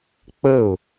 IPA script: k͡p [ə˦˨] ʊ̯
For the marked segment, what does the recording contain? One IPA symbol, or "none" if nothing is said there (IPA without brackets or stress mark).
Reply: ə˦˨